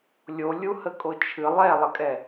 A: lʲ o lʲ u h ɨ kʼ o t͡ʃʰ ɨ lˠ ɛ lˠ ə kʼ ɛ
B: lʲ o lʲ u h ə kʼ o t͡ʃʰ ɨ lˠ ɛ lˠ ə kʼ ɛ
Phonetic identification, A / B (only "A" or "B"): B